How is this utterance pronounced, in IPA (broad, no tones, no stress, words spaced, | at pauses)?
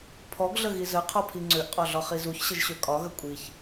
pʰɔɡɮəɣi zəqʰɔpʰi ŋ͡ǀøʔqʼɒɮɒχi zuçɕəʒɕø kʼɒɣə kʷʼiç